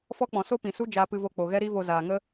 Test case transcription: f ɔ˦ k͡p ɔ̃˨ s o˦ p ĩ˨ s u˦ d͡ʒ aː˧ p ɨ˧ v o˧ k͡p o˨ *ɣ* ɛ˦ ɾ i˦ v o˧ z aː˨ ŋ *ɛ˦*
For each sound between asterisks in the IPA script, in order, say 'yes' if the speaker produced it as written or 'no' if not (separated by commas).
yes, no